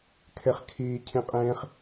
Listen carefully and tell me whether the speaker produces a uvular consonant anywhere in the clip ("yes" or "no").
yes